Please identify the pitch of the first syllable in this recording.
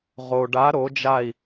low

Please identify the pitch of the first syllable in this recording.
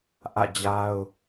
falling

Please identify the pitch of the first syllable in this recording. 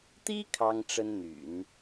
high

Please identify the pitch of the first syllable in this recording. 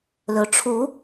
low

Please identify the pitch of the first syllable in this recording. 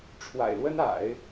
low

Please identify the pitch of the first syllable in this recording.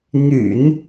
low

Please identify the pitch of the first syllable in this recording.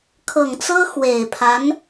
low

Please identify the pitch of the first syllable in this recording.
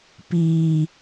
low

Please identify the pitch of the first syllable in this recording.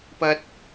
high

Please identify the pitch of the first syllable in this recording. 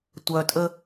low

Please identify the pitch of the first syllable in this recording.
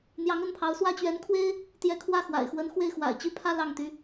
rising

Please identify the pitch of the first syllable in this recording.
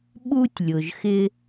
high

